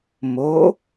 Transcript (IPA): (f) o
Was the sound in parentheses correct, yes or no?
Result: no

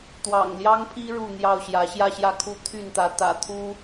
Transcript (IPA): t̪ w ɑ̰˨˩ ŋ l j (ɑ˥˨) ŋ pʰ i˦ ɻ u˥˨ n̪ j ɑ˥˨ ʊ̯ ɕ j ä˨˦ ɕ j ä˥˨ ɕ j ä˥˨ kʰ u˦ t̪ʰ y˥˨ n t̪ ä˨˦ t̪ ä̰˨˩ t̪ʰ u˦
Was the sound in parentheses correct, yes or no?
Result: no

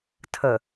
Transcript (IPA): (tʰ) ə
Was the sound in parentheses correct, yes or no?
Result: yes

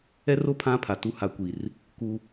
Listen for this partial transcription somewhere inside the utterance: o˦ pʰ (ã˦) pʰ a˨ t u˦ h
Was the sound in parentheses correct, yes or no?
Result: yes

